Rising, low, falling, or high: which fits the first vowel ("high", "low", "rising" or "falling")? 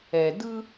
low